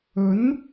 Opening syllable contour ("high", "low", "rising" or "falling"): rising